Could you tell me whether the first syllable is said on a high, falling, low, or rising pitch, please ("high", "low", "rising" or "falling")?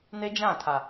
high